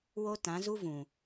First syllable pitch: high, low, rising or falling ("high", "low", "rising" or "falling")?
high